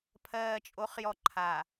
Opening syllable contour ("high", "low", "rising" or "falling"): low